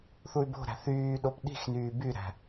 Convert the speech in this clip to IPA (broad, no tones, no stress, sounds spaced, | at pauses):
θ u y̯ b o̤ ɾ æ̤ θ yː ɗ o p ɗ i̤ x n yː b y ɾ æ̤